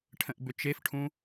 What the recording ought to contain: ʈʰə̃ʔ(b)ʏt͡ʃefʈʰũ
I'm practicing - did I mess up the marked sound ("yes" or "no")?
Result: no